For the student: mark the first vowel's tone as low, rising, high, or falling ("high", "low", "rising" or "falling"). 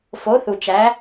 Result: rising